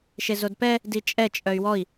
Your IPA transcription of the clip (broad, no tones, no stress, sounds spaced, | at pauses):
ʃ e z o d p ɛ | d i t͡ʃʼ ɛ t͡ʃʼ œ y̯ w ɔ i̯